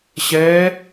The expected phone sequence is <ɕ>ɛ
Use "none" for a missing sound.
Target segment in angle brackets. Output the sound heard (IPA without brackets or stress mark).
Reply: ɕ